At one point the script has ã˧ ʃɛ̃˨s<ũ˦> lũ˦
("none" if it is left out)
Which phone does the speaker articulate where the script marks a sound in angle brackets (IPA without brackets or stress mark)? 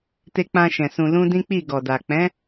ũ˧